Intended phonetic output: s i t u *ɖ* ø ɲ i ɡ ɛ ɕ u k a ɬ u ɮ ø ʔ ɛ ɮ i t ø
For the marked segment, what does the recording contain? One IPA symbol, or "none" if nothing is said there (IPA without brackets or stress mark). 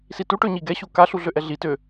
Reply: ʈ